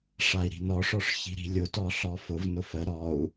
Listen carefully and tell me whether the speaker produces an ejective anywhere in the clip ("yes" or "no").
no